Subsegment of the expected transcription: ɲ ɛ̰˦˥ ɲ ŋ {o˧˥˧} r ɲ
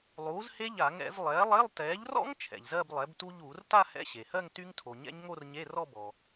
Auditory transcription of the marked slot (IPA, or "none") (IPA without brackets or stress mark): o˥˧